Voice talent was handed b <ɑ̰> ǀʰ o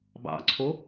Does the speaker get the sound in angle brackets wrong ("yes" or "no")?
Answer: no